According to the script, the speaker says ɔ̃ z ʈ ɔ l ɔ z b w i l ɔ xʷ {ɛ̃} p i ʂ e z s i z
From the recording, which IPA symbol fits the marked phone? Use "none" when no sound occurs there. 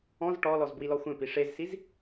ɛ̃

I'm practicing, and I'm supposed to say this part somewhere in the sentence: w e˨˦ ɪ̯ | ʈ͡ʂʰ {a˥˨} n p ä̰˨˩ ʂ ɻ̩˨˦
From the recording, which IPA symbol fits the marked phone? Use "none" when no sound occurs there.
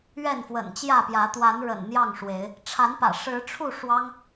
a˨˦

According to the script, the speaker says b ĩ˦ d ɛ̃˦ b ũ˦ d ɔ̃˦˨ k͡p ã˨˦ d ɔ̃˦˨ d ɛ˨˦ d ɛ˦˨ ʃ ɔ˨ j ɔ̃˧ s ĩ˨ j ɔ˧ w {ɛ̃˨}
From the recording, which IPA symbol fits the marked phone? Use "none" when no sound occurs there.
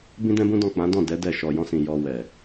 ɛ˨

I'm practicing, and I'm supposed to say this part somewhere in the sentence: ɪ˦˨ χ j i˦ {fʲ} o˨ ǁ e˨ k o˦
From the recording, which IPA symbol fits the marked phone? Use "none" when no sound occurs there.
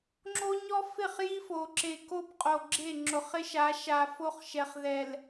f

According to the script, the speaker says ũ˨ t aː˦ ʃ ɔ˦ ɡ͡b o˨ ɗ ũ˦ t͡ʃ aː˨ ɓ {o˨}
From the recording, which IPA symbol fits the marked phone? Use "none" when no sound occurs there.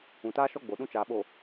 o˨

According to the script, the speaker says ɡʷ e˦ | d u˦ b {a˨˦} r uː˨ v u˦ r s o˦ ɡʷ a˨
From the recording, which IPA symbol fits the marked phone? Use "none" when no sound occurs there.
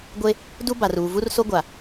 a˨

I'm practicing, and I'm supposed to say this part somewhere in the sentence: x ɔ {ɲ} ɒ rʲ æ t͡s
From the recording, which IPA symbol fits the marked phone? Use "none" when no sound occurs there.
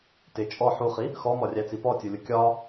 m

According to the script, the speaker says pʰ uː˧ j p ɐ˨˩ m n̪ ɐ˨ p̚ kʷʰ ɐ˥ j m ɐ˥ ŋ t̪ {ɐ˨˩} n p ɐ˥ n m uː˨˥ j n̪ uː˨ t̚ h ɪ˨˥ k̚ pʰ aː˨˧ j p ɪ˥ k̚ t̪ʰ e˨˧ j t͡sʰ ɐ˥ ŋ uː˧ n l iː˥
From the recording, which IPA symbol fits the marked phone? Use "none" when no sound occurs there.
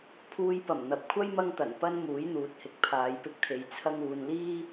ɐ˨˩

